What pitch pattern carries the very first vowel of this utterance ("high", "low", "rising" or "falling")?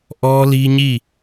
high